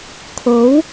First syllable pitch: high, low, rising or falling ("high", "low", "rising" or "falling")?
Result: rising